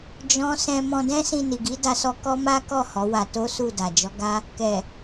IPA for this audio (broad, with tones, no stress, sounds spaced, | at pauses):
d͡ʒ ɔ̃˦ s ɛ̃˧ m ɔ̃˧ d ɛ̃˦ s ĩ˧ n i˨ ɡ i˨˦ d a˧ s ɔ˧ k ɔ˦ m a˦ k ɔ˦˨ h ɔ˨˦ w a˧ t o˦ s u˦˨ d a˨ d͡ʒ ɔ˨˦ ɡ a˦ | k ɛ˨